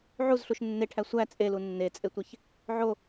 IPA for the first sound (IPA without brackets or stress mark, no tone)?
ʕ